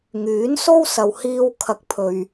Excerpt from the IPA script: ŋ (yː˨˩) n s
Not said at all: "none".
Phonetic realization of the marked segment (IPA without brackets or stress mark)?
yː˨˥